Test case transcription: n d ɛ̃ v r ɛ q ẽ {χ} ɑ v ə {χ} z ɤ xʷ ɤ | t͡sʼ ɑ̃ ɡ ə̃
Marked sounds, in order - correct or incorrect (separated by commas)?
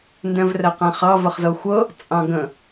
correct, correct